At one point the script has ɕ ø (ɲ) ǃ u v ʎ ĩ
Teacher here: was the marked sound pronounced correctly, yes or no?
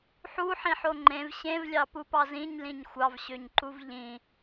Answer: yes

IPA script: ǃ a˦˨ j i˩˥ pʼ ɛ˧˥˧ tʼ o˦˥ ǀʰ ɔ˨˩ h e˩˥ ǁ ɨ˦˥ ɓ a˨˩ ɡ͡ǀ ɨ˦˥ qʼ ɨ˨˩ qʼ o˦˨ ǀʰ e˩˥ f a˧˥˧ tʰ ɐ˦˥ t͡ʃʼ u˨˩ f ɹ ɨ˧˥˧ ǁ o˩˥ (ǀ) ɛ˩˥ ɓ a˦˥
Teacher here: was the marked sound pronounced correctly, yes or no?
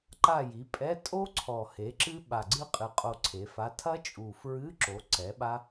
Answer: yes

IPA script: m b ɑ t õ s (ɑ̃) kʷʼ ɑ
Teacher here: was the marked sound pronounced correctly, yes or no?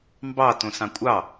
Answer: yes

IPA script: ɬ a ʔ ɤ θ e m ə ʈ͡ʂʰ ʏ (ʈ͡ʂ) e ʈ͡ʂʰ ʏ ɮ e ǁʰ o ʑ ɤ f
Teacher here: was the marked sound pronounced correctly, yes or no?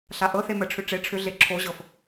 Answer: yes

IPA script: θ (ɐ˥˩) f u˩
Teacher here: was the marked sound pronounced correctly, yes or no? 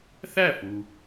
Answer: no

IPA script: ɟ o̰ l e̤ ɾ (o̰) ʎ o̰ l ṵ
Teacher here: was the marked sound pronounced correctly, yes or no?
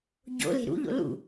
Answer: no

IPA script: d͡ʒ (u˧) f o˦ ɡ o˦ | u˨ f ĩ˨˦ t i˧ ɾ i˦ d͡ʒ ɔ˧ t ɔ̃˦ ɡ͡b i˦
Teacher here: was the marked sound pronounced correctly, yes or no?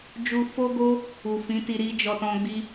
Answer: yes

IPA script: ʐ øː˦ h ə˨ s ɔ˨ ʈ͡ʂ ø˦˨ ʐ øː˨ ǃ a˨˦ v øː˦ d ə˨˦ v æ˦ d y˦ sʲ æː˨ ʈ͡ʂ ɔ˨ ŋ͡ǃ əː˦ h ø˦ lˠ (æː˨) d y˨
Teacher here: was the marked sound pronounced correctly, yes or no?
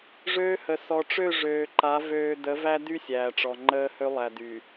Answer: no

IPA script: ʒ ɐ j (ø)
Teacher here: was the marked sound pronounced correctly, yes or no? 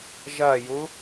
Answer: no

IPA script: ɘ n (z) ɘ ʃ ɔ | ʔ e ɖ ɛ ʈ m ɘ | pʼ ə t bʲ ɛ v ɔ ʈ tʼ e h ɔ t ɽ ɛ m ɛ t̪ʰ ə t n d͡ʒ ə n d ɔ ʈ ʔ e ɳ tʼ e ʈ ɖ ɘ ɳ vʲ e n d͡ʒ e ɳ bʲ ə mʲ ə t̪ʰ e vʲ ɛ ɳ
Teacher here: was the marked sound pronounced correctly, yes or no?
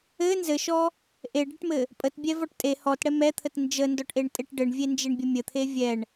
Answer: yes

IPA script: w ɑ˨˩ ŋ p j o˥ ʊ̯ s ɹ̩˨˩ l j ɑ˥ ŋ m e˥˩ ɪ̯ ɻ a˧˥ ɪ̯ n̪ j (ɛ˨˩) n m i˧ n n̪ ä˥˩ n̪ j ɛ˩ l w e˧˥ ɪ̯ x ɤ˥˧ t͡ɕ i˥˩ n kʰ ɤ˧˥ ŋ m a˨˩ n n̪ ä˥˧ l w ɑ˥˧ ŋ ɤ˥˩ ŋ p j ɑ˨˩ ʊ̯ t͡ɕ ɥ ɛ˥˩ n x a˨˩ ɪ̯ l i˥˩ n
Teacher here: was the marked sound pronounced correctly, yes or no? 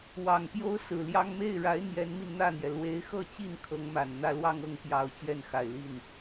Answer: no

